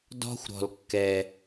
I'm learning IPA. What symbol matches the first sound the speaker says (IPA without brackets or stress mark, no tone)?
d